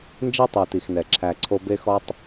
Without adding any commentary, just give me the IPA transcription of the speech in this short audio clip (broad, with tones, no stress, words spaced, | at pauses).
nd͡ʒe˥tˤe˨ti˩xnɛ˩ ǁʰæ˨ǀʰo˦ be˦xɔ˦tˤ